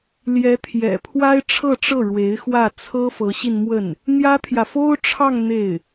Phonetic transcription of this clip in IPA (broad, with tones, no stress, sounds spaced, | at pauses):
l j ɛ˧˥ t̪ʰ j ɛ̰˨˩ pʰ w a˥ ɪ̯ ʈ͡ʂʰ ɤ˥˧ ʈ͡ʂ ɤ˥˩ ɻ w e˧˥ ɪ̯ x w ä˥˩ t͡sʰ ɤ˥ f ɤ˧˥ ɕ i˧ n m w ə˥˩ n | n̪ j ä˥ t̪ʰ j ä˨ f o˥ ʊ̯ ʈ͡ʂʰ ɑ˥˧ ŋ n̪ e˥˩ ɪ̯